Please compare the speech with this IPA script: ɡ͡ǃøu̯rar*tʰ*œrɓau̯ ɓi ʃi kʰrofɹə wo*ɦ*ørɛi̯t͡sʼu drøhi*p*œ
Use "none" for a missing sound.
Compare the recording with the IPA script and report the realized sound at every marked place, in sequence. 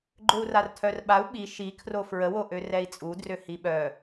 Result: tʰ, ʔ, ɓ

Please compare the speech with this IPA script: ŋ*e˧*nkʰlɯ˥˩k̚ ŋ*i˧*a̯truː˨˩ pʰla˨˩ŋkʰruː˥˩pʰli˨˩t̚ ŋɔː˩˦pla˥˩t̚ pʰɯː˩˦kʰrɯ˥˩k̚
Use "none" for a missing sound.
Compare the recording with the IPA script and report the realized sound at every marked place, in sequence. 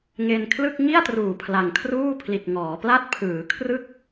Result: e˧, i˥˩

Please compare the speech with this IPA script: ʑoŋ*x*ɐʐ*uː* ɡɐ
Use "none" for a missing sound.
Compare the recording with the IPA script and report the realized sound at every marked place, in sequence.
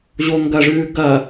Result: ɡ, ʉː

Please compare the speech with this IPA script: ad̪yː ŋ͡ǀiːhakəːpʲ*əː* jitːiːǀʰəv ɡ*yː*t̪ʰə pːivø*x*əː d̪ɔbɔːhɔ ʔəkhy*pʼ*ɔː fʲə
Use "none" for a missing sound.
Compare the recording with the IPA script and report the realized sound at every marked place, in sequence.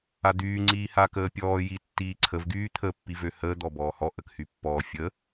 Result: ɔː, yː, h, pː

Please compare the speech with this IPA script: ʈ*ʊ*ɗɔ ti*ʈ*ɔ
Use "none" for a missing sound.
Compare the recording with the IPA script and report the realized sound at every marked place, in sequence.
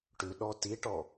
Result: ʉ, ʈ

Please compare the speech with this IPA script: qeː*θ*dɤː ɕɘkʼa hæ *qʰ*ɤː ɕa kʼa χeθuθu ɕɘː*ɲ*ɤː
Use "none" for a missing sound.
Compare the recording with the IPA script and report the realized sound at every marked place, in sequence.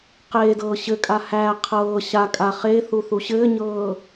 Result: none, qʰ, ɲ

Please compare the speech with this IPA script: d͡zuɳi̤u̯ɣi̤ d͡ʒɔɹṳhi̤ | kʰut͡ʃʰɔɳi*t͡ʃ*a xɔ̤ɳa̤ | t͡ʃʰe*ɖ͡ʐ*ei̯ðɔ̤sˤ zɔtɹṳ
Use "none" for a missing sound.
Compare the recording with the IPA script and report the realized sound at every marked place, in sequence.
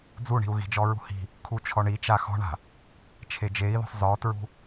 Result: t͡ʃ, d͡ʒ

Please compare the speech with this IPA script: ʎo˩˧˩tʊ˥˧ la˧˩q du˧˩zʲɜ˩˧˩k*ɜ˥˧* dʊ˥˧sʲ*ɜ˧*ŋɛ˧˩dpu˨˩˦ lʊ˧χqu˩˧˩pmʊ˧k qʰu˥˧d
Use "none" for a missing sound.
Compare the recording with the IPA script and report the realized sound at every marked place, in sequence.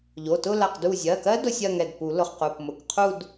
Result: ɜ˦˥, ɜ˥˧

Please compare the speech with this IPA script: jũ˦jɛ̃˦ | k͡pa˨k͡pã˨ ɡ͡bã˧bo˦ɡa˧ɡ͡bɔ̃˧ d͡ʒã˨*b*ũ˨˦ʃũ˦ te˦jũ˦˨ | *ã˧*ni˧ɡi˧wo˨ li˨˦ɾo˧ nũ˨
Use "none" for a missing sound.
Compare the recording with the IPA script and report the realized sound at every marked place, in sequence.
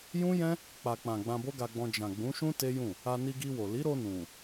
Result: ɡ͡b, a˧

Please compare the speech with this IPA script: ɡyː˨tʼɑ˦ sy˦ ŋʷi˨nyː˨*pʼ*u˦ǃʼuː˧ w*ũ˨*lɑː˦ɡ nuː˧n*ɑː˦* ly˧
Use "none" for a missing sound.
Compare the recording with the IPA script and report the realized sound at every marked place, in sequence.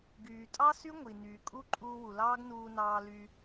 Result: kʼ, u˨, ɑː˧

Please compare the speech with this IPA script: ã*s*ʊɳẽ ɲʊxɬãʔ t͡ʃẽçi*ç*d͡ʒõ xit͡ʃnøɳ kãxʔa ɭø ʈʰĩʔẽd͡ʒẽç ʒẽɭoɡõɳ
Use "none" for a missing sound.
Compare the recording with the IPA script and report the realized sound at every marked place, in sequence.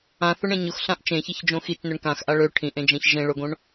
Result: θ, ç

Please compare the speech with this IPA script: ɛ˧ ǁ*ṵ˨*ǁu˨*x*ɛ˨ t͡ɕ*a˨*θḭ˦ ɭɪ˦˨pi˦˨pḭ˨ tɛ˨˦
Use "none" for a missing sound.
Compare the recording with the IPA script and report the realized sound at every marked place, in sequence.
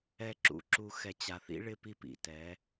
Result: ṵ˨, x, a˨

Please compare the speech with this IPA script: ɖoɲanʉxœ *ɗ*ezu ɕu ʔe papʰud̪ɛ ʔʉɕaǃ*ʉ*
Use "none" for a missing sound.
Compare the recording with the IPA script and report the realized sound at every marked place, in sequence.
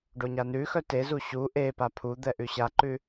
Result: t, ʉ

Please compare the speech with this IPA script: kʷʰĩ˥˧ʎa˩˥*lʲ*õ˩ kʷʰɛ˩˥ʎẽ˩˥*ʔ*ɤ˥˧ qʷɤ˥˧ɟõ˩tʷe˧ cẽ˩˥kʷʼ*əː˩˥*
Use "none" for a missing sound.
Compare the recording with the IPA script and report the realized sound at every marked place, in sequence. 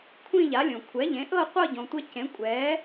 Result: lʲ, ʔ, ɛː˩˥

